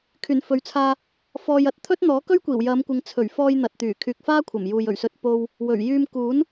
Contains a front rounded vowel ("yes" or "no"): yes